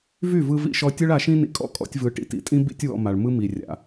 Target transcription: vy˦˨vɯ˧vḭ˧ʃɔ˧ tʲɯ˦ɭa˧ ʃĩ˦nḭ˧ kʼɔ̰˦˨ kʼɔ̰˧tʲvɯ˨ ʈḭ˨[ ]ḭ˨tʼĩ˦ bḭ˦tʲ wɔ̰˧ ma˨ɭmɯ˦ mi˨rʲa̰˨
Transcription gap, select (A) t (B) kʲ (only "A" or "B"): A